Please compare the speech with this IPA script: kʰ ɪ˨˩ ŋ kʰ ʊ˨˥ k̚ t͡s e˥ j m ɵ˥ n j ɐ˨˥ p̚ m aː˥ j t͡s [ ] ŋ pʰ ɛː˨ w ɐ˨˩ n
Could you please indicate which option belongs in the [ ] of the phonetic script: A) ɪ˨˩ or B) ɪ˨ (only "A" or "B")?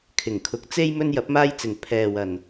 B